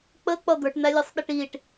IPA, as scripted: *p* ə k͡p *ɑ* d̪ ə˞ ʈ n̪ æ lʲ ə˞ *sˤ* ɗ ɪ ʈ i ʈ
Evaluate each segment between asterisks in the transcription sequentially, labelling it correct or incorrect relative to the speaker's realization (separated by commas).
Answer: incorrect, incorrect, correct